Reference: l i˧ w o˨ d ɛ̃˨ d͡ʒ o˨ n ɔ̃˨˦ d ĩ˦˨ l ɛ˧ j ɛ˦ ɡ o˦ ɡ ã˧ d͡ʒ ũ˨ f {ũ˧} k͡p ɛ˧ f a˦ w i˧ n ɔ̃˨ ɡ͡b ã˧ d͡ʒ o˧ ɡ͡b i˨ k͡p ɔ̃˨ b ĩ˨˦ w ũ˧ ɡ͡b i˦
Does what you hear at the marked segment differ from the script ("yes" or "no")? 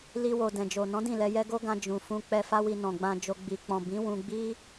no